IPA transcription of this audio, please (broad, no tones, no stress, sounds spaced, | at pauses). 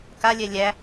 k a lʲ ɛ lʲ æ